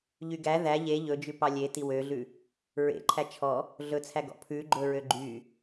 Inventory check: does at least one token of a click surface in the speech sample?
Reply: yes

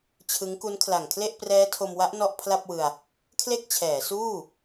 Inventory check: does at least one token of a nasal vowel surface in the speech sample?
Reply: no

